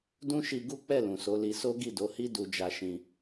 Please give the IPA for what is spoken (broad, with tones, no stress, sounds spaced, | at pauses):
d ũ˦ ʃ i˧ ɡ u˦ k͡p ɛ˦˨ l ũ˨ s o˨˦ l i˧ s o˦ ɡ i˦˨ d o˨˦ h i˦ d u˧ d͡ʒ a˧ ʃ ĩ˧